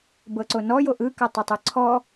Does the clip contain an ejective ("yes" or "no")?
no